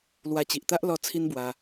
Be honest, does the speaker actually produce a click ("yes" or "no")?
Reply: no